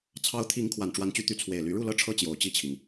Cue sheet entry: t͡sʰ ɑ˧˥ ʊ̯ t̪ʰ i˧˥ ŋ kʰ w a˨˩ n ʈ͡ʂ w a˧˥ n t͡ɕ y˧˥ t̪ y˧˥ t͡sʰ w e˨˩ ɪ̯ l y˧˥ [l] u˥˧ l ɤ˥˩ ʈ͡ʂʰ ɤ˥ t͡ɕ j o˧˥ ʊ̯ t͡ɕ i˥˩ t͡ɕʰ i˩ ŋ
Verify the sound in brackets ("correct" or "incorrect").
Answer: incorrect